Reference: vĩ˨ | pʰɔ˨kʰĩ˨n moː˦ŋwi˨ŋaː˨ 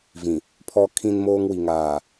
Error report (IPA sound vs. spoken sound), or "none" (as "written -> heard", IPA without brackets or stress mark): none